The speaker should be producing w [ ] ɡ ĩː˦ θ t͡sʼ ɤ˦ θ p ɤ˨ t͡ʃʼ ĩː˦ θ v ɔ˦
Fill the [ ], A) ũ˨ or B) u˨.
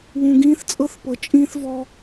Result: A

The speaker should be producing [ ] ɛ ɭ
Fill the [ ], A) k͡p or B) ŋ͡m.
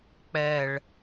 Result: A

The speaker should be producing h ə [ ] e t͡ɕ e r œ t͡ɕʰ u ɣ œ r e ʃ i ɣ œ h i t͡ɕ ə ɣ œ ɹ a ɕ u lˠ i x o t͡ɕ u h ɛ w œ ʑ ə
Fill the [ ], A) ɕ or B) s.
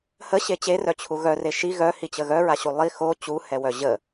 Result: A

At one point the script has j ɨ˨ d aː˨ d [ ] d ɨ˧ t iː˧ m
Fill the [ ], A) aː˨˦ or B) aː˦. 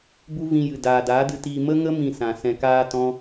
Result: A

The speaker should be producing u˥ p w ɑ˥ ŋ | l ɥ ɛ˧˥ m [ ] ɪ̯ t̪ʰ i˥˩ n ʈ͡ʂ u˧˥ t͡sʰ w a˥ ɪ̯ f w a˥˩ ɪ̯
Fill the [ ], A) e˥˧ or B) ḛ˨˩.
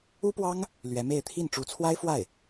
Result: A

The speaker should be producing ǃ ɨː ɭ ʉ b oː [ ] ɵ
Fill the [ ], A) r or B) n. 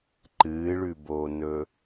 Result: B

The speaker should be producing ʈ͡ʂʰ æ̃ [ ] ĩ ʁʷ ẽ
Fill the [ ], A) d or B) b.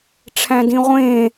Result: A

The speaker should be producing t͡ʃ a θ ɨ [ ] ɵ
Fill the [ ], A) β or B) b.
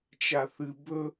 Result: B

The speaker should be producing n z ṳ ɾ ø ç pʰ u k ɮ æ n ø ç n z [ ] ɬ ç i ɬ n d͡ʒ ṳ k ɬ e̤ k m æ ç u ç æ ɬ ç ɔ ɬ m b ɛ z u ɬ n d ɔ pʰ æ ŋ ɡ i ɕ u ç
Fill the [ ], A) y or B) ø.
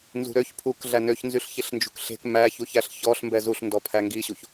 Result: A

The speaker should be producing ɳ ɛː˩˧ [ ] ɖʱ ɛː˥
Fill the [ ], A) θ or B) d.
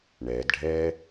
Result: B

